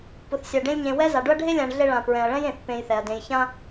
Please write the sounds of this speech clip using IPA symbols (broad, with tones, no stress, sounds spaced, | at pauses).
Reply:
p ʊ˩ θ sʲ a˩ ɖ ẽ˦ lʲ ɲ ẽ˨ w ɛ˦ z a˩ ɖ ʊ˥ ɐ̯ ɖʱ e˥ lʲ ã˨ ɳ ɮ e˦ ɭ ã˩ p ɹ ɛ̃˩ ɐ̯ ɭ ɛ̃˥ j ẽ˩ θ p ẽ˨ j θ ɛ˩ ɐ̯ d ẽ˨ j ç ã˥